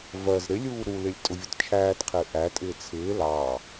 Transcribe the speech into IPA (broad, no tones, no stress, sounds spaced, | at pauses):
v ɜ z ɾ ɪ lʲ uː ɾ u l ɪ lʲ tʼ ʊ vʲ ʊ t t͡ʃʰ æː t qʰ ɪː ʔ æ tʼ ɪː t͡sʰ ɪː l ɑː